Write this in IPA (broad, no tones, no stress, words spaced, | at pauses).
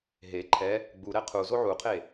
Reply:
ɦe ǃʰɛ | ɡ͡buɾɛ qʰuzo ʕuqʰe